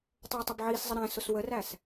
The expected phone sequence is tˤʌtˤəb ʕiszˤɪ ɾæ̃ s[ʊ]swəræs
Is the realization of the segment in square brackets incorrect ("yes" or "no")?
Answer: no